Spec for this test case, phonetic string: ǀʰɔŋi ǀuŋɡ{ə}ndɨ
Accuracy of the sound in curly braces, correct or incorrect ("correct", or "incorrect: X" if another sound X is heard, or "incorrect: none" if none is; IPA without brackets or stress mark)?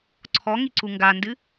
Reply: incorrect: a